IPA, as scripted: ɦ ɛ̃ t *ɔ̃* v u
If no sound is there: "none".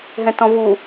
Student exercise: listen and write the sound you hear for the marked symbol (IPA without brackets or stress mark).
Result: ɔ̃